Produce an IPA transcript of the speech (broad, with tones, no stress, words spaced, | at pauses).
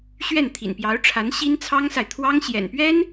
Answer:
ɕɥɛ˥˩n t̪ʰḭ˨˩npjɑ˧˥ʊ̯ʈ͡ʂʰa˧˥n ɕi˥nt͡sʰɑ˥ŋsa˨ɪ̯ t̪ʰwɑ˥ŋ ɕjɛ̰˨˩npɥɛ˥n